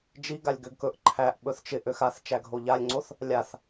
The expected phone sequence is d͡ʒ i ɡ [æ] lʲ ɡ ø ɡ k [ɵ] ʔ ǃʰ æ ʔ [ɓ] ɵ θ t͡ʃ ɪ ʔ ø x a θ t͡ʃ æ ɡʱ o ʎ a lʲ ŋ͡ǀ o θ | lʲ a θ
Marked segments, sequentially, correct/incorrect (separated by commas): incorrect, correct, correct